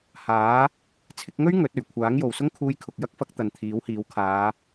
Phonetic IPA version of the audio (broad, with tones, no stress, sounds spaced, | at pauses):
h aː˨˥ | t͡sʰ ɪ˧ k̚ ŋ ɵ˥ ɥ ŋ ɵ˨˥ t̚ ɵ˨˩ ɥ kʷʰ aː˨˥ ŋ j o˨ w s ʊ˥ ŋ kʰ uː˧ j kʰ ʊ˨ k̚ j ɐ˥ k̚ f ɐ˨˥ k̚ t̪ ɐ˨ n t̪ʰ iː˨˥ w h iː˨˥ w kʰ aː˨˧